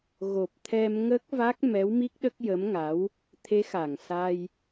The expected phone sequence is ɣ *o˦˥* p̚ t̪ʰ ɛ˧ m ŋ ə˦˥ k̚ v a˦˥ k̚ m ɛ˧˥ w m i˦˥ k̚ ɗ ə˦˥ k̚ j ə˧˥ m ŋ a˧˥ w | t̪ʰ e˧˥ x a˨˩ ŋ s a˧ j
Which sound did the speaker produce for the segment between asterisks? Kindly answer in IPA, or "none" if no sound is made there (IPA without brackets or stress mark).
o˨˩